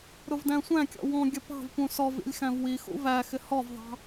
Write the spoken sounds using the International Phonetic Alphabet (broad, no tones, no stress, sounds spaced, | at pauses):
ɾ ʊ v d æ̃ sʷ æ̃ kʲ ɔ̰ w ɔ̃ ɡʲ ə p ɑ̤ v p ũ s ɔ v ḭ lʲ x æ̃ v w i x ṵ v æ x ɪ h ɔ v ðˤ ɑ̤